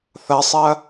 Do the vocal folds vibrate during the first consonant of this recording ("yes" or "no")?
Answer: no